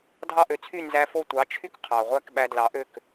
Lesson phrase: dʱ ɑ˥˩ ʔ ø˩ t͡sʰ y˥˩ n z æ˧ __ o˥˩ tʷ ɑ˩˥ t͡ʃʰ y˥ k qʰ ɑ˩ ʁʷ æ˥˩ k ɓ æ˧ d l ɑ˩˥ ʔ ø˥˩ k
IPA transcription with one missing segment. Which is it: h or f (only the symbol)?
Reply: f